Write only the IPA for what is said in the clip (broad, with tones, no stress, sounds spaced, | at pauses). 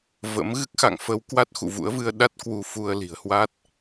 v ə̰˧˥ m ɣ ɨ˦˥ k̚ x a̰˧˨ ŋ f ə˧ w k w a˦˥ t̚ x ṵ˧˨ v ṵ˧˥ ə̯ v ɨ˧ ə̯ ɗ a˦˥ t̚ k w u˧ f u˧ ə̯ l i̤˨˩ ə̯ h w a˦˥ t̚